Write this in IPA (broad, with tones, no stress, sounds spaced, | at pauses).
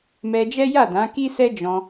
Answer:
m ɛ˧ d͡ʒ ɛ˦ j a˦˨ d ã˨˦ k i˦ s ɛ˦ d͡ʒ ɔ̃˧